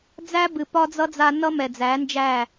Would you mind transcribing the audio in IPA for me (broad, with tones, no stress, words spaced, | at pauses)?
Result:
d͡zæ˦bɨ˨ pɒ˦d͡zʌ˦ d͡za˧nʌ˦mɛ˨ d͡zæ˨˦nd͡ʒæ˦˨